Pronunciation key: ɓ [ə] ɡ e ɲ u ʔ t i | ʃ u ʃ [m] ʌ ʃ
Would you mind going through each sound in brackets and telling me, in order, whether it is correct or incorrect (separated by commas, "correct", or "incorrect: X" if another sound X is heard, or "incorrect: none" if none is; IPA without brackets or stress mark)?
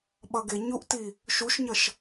incorrect: ʌ, incorrect: ɲ